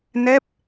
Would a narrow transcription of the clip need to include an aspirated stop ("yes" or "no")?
no